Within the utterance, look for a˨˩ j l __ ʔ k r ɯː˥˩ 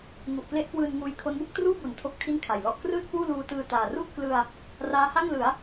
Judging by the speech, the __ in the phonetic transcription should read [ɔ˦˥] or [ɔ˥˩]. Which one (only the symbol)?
ɔ˥˩